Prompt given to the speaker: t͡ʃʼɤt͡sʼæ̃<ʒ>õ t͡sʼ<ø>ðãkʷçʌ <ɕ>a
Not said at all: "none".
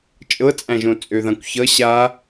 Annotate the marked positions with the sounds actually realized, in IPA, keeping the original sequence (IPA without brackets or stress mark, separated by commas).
ʒ, ø, ɕ